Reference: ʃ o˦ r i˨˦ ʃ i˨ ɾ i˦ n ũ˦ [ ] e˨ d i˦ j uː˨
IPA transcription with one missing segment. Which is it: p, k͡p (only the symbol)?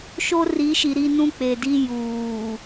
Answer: k͡p